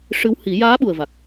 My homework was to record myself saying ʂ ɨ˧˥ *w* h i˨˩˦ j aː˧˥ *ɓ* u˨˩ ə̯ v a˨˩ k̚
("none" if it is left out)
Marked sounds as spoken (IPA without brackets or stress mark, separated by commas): w, ɓ